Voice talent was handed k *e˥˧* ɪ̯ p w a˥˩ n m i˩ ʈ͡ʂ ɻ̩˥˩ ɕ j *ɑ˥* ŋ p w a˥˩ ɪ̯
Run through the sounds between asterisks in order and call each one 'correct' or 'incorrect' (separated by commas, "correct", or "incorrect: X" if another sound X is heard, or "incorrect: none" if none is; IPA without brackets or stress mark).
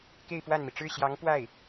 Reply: correct, incorrect: ɑ˧˥